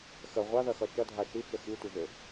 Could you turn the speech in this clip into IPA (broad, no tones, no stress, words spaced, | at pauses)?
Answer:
xə ʁʷaðɐxʌ t͡ʃʌdʱa ʃit͡ʃə xitʷəʒø